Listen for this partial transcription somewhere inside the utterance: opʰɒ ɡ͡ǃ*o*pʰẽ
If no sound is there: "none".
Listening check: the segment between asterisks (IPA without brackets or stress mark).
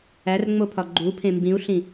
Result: u